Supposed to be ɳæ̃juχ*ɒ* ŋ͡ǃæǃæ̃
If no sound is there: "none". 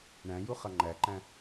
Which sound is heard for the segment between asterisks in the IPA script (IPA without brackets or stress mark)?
ʌ